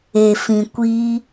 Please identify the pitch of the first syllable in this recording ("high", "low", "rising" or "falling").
low